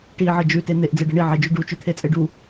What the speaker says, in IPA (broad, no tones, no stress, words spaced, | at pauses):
ʈiʕə d͡ʒʉte n̪eʔd͡zeɖə ɳiʕed͡ʒʉ ɖut͡ʃʉt̪ʰet͡sʼe ɖu